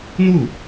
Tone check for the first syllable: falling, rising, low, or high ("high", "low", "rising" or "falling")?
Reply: falling